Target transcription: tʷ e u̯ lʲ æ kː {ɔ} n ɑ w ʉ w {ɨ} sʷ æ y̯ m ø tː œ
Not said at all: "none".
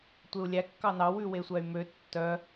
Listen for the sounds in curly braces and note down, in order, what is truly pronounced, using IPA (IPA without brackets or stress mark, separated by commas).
ɑ, e